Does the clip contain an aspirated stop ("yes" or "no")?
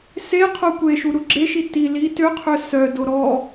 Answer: yes